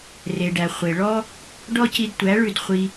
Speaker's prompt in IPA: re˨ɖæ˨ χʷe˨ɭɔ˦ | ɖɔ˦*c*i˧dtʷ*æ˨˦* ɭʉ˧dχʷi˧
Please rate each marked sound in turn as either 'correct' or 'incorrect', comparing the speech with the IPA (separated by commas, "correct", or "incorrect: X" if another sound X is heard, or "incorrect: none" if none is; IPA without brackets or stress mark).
correct, correct